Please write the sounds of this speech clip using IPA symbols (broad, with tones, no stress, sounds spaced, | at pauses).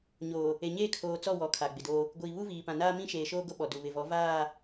ɲ oː˨ | e˨ ɲ eː˦ kʰ oː˨ t͡s ɔ˦˨ w ɔ˨˦ kʰ a˨ ɡ͡b ɪ˨ d oː˦ | ɡʷ iː˨ β u˦ v iː˨ p ã˨ n aː˦ m ĩ˦ ʃ eː˨ ʃ oː˦ ɡ o˦ ɓ ɔ˨ d u˨ β ɪ˨ v ɔ˨˦ v aː˦˨